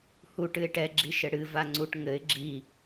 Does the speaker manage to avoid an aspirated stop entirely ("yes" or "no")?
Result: yes